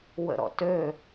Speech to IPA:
w ə̰ ɾ ɔ̰ t ø

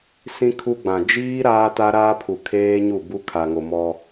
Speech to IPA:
s ĩ˦ kʰ u˦ ɡ͡b ã˨ d͡ʒ iː˦ ɾ aː˦ t a˦ ɾ aː˦ pʰ u˨ kʰ eː˦ ɲ u˦˨ b u˦ kʰ a˨ ŋ o˨ m ɔ˦

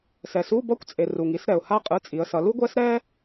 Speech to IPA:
s ɛ˩ s u˧˥˧ b ʌ˥ kʷ t͡sʼ e˩ r u˩ ŋ i˨˦ s ɾ ɛ˩ ʊ̯ h a˥ qʼ ɯ˧˥˧ t͡sʼ i˨˦ ə̯ s ʌ˨˦ l u˥ ɡʷ ɛ˥ s ɾ ɛ˥

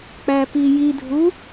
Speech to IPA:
k͡p æ p i j i dʱ u

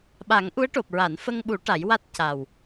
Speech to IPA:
ɓ a˨˩˦ ŋ ʔ u˧˥ ə̯ ʈ o˨˩ p̚ ɹ a˨˩˨ n f ə˧ ŋ ɓ u˨˩˦ ʈ a˨˩˦ j w a˦˥ t̚ c a˨˩ w

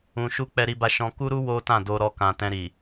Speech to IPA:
ũ˨ ʃ u˧ k͡p ɛ˧ ɾ i˧ b a˧ ʃ ɔ̃˧ k u˦ ɾ u˦ w o˦ t ã˦˨ d o˧ ɾ ɔ˧ k ã˨ t ɛ̃˧ ɾ i˨

